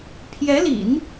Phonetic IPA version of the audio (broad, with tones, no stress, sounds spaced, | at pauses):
pʰ j ɛ˧˥ l ḭ˨˩˦ n